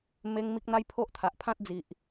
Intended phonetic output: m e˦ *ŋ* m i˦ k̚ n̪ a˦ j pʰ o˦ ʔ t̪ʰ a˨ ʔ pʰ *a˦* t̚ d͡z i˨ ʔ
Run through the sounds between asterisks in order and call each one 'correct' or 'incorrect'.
correct, incorrect: ã˦

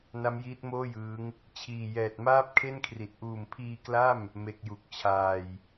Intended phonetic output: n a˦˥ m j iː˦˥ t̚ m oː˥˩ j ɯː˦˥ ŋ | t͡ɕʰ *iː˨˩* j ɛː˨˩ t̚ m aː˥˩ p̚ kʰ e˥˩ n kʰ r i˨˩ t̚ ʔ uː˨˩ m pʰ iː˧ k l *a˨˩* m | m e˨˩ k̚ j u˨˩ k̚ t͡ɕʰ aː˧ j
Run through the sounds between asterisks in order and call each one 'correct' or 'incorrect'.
correct, incorrect: a˥˩

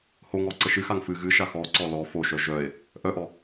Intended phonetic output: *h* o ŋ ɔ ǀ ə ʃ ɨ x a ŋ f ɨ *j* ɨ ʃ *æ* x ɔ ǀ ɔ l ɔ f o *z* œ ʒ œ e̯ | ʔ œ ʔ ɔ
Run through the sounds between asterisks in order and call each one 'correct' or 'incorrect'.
correct, incorrect: ɣ, incorrect: a, incorrect: ʃ

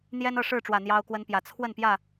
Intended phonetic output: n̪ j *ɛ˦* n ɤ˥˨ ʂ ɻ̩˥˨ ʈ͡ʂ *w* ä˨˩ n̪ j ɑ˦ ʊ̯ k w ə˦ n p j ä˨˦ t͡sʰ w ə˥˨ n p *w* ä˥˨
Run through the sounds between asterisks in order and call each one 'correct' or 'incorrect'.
correct, correct, incorrect: j

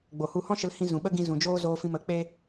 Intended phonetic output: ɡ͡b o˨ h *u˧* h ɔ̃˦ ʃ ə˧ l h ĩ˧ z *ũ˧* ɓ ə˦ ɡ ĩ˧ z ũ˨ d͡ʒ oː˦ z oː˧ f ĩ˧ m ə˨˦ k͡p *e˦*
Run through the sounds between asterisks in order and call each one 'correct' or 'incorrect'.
correct, incorrect: ũ˨, correct

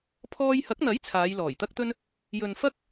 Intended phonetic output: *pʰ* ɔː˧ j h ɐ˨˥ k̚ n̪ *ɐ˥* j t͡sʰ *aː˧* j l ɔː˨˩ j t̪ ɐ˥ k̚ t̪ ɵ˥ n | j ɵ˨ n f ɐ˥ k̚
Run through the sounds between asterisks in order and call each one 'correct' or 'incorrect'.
correct, incorrect: ɐ˨˥, incorrect: aː˨˧

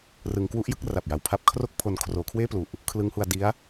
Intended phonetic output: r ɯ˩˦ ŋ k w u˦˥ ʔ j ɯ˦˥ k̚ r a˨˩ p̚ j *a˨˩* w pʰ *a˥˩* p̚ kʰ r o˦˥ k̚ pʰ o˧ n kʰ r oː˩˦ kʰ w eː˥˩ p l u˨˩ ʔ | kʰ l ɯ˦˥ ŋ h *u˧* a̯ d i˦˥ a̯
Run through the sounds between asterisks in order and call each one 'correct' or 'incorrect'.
correct, incorrect: a˦˥, correct

